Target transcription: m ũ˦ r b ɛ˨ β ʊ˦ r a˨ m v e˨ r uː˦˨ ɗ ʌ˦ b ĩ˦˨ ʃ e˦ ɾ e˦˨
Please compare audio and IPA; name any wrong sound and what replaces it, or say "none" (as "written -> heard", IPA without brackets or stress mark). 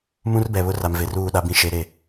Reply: ʌ˦ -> a˦